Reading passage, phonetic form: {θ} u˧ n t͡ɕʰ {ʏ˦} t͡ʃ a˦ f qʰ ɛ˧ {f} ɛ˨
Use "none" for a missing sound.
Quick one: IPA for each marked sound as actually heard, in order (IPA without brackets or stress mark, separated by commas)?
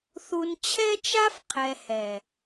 θ, ɛ˦, h